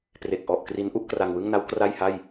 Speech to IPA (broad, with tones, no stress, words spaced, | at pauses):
pre˨˩k̚ʔɔ˨˩ʔ kri˦˥nʔu˦˥ʔ kra˧ŋwɯ˥˩ŋna˦˥w kra˥˩jha˥˩j